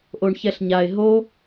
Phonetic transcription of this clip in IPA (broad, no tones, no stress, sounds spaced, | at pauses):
ʔ o ɳ ç ɛ ɬ ɲ a ɪ̯ ɦ o